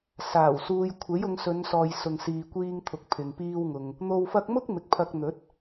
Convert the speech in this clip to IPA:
s aː˨˩ w s uː˧ j kʷʰ e˨˥ j ʊ˨˧ ŋ s ɵ˨˧ n s ɔː˨ j s ʊ˨ ŋ s iː˨ kʷ iː˧ ŋ t̪ʰ ʊ˨ k̚ pʰ ɪ˨ ŋ p iː˥ w ŋ ʊ˧ ŋ | n̪ o˨ w f ɐ˧ k̚ m ʊ˥ k̚ m ɪ˨ k̚ pʰ ɐ˧ k̚ n̪ ɵ˨˥ t̚

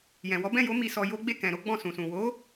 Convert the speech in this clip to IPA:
j ɛ̃˨ w ɔ˨˦ b ɛ̃˦˨ j o˨˦ m i˧ s ɔ˧ j o˦ ɡ͡b e˦˨ k ɛ̃˨ ɾ o˨˦ ɡ͡b ɔ̃˦˨ s ũ˨ s ũ˨ w o˨˦

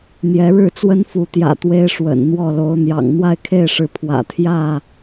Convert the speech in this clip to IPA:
n̪ j ɛ˨˦ ɻ ɻ̩˥˨ t͡s w ə˦ n f u˨˦ t̪ j ä̰˨˩ t̪ w e˦ ɪ̯ ʂ w ə̰˨˩ n n̪ w ɔ˥˨ l o˨˦ ʊ̯ n̪ j ɑ̰˨˩ ŋ n̪ w a˥˨ ɪ̯ kʰ e˥˨ ɪ̯ ʂ ɻ̩˨˦ pʰ w ä̰˨˩ t̪ʰ j ä˥˨

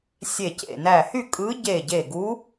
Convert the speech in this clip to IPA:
sʲ e˧˩ c ḛ˧˩ n æ˧˩ h y˥˨ kʼ ɯ˧˥ ɟ e˧˩ ɟ e˧˩ ɡ u˧˥

